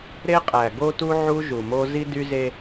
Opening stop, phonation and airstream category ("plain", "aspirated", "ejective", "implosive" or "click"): ejective